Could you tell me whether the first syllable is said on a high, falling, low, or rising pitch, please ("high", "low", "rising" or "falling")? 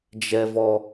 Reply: high